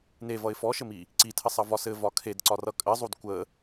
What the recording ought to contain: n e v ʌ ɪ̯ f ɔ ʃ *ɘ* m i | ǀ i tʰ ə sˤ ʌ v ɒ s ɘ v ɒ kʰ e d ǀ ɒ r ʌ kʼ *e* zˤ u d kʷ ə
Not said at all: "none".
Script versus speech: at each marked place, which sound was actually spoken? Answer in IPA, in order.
ɘ, ɘ

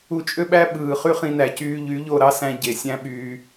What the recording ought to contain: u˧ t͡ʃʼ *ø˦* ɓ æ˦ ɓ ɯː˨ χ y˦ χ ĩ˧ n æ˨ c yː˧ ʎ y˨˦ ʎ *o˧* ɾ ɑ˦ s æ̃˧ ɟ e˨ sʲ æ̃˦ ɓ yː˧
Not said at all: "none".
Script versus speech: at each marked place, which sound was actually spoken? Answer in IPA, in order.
ø˦, o˦˨

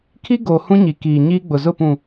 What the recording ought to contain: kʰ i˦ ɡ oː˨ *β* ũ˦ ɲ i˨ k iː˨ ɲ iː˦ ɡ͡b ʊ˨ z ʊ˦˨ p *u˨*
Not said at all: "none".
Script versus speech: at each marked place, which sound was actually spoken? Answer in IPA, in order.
h, ũ˨

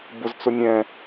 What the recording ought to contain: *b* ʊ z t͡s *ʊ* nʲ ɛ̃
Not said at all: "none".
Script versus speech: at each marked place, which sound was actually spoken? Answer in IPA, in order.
b, ʊ

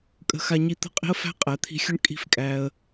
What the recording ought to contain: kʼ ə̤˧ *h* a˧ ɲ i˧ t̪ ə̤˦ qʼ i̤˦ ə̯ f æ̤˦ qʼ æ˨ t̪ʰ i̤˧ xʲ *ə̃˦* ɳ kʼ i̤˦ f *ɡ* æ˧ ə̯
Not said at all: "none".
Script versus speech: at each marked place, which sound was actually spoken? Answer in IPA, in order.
x, ə˦, kʼ

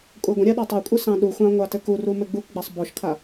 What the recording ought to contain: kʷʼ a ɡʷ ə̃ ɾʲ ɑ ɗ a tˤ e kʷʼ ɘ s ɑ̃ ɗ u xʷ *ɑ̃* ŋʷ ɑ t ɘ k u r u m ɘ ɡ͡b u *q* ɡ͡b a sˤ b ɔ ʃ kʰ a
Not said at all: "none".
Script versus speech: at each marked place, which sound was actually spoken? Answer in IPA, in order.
ɑ̃, k

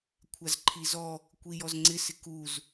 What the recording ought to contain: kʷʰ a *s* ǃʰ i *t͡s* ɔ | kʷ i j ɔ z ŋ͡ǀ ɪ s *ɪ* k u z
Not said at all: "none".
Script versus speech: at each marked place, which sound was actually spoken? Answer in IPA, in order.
z, z, ɪ

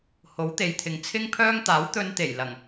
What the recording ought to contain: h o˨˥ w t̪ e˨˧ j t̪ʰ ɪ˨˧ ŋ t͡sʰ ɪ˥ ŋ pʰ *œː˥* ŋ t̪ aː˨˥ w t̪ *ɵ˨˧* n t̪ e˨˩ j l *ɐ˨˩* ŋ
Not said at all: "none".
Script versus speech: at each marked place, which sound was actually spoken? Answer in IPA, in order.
œː˥, ɵ˧, ɐ˨˩

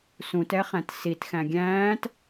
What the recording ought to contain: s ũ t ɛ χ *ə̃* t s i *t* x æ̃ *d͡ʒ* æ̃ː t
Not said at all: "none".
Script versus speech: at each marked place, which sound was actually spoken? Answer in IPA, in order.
æ̃, t, ɡʲ

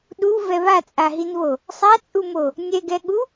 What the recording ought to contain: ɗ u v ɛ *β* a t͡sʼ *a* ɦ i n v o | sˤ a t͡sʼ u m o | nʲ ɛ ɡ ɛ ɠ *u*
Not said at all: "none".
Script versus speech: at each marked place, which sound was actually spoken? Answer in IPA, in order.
β, a, u

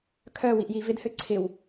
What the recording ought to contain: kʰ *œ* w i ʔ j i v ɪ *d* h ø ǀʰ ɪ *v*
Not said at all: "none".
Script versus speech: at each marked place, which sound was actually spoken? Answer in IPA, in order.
œ, d, w

